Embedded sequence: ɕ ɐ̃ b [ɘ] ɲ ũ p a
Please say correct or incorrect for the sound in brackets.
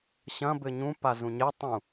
correct